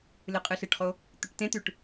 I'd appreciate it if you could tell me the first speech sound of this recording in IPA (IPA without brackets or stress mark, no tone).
l